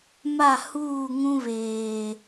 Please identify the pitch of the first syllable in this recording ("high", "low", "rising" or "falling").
falling